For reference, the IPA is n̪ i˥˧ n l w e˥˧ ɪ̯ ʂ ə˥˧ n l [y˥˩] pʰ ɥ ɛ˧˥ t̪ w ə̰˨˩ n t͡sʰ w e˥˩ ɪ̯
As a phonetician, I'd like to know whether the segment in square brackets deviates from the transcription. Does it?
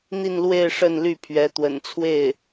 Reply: no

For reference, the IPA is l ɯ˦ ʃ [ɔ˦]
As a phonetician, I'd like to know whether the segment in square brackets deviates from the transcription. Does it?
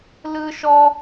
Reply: no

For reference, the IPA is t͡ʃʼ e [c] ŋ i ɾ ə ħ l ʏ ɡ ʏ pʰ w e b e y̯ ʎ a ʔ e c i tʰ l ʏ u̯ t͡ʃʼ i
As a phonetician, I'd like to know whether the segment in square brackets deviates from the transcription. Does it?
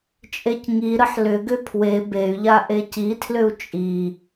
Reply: no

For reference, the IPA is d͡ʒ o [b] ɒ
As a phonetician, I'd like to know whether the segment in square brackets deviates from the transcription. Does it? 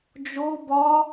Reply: no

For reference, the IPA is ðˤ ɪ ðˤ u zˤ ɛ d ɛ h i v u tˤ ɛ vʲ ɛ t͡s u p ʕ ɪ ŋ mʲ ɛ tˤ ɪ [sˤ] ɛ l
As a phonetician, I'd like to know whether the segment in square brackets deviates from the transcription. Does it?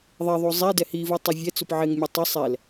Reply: no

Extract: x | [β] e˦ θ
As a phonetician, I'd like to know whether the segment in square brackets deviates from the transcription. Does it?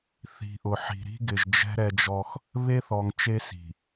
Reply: no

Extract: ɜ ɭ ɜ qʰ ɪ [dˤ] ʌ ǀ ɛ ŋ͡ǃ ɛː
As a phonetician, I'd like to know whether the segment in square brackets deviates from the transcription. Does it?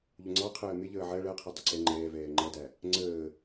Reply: no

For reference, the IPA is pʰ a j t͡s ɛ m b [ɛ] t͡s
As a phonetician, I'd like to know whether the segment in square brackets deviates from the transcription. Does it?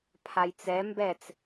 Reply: no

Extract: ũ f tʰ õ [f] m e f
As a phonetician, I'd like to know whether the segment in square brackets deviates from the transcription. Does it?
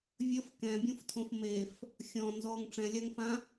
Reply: no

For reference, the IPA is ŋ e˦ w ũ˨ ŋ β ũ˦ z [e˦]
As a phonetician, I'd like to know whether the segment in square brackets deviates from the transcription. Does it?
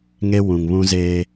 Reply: yes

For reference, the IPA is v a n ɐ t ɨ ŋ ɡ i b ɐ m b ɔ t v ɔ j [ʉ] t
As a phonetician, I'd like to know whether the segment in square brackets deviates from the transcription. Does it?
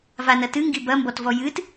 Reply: yes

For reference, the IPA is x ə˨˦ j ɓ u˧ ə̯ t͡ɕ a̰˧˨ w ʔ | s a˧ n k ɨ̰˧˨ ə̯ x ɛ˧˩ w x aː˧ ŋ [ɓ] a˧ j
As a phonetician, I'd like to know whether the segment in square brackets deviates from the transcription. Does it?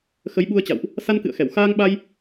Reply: no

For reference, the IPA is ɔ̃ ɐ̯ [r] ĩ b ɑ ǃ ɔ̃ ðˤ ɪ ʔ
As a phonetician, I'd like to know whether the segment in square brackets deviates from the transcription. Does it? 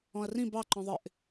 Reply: no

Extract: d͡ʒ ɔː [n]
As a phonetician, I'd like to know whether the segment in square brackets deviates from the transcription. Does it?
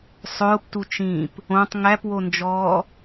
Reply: yes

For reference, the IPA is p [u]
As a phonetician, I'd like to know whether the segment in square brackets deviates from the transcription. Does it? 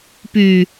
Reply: yes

